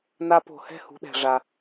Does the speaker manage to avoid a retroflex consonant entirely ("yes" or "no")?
no